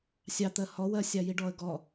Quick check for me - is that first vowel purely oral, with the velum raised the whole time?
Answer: yes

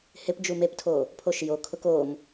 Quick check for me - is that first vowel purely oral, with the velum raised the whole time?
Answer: yes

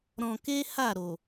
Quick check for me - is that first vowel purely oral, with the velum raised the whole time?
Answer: no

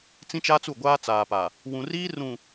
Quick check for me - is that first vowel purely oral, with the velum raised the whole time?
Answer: no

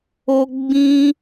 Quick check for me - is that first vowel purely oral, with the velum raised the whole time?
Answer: yes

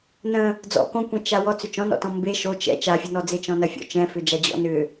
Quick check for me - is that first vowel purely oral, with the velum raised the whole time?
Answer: no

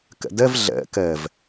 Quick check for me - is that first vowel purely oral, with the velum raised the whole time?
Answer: yes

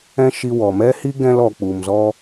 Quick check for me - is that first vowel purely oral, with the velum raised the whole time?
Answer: no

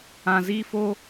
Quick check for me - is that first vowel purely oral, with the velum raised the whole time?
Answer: no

